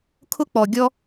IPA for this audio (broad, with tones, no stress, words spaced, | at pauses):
kʰʊ˥k͡pɔ˧ ɡʲɔ˥